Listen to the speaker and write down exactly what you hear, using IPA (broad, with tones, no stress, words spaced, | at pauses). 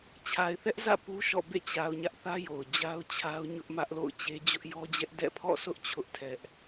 t͡ɕʰa˨ɪ̯θɛ˦ʔzä̰˦˨ pu˦ʃɔ̰˦˨ bḛ˦˨t͡ɕa˨ʊ̯ ɲä˦ʔθä˦jo˨ʊ̯ d͡ʑa˦ʊ̯t͡ɕʰa˦ʊ̯ɲʊ˦ʔmä˦ʔ lo̰˦˨ʊ̯t͡ɕe˦ d͡ʑʊ˦ʔjɔ˦d͡ʑɛ˦ʔ dɛ̰˦˨pʰɔ̰˦˨sʊ˦ʔ t͡ɕʰʊ˦ʔtʰɛ˦ʔ